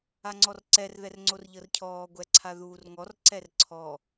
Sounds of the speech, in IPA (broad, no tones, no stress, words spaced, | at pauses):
aŋ͡ǀɔrǀɛr ðɛrŋ͡ǀorʎɤrcʰɔː ɡʷɛǀʰaðuːrŋɔr ǀɛrǀʰɔ